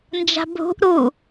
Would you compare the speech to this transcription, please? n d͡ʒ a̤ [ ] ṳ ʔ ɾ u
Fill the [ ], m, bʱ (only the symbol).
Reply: bʱ